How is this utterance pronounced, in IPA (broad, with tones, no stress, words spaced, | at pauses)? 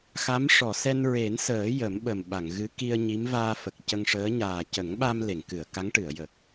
xa˧˥m ʂɔ˨˩˨sɛ˧nɹe˨˩˦nsəː˨˩˦ jə˨˩˦mɓə˨˩mɓa˨˩˨ŋ ɣɨ˧˥ki˧ə̯ɲi˧˥m vaː˧fə˨˩k̚cə˧ŋʂəː˧˥ ɲaː˨˩cə˨˩˦ŋɓa˧m le˨˩˨ŋkɨ˨˩˨ə̯ ka˧˥ŋʈɨ˨˩˨ə̯jə˨˩k̚